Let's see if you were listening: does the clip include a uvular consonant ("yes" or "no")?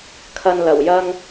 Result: no